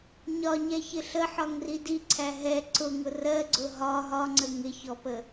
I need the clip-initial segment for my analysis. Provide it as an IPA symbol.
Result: ɲ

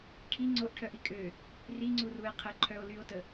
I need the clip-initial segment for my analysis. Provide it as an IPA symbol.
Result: ʈʰ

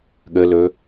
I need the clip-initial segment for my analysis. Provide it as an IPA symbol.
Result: ɠ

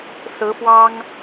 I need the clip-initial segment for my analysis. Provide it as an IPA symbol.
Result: s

